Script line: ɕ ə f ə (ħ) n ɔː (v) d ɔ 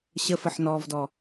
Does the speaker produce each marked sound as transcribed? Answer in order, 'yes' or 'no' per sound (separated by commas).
yes, yes